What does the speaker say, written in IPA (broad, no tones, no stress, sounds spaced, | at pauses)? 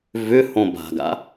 v ʏ h õ b a̤ ɡ a̰